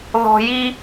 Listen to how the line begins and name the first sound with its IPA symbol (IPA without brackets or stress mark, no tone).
ð